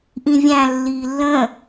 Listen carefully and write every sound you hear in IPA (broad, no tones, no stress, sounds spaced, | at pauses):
ʔ ĩ vʲ æ̃ lː iː lː ə̃ː